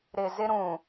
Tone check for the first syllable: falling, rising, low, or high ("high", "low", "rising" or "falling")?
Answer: low